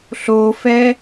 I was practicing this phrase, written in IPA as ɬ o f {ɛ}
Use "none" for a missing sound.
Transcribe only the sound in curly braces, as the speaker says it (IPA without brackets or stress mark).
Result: ɛ